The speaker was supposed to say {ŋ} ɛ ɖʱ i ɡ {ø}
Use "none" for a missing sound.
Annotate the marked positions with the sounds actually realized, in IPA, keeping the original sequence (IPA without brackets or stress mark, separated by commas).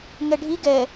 ŋ, ɛ